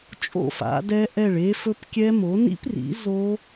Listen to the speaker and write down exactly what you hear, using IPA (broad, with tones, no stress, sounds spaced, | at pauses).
t͡ʃʼ o̰˥˩ f a̰˩˥ d ɛ˦˥ ʔ ɛ˥˩ ɭ e˦˥ f ɵ˦˥ p kʲ ɛ˦˥ m o˩˥ n ḭ˦˥ p r ḭ˩˥ z o˦˥